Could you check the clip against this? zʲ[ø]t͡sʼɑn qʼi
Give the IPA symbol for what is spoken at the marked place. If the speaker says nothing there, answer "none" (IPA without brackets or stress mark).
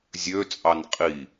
ø